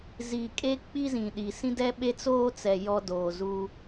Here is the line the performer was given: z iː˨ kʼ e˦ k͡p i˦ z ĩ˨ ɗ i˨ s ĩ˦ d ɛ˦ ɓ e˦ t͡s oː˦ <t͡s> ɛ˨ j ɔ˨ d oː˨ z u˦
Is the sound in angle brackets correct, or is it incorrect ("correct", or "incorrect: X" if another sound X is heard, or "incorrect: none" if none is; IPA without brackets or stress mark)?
correct